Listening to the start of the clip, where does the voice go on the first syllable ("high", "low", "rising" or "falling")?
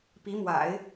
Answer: rising